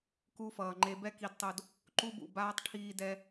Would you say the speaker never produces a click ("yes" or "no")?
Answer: no